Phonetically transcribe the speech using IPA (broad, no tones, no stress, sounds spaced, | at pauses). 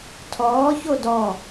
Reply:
tʰ ɔː ç o d ɔ